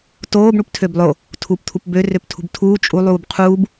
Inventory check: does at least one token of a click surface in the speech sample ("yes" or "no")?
no